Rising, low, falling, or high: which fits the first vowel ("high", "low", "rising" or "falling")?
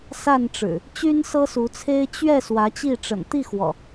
falling